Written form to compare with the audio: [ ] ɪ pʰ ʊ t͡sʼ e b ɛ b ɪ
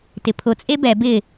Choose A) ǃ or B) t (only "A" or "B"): B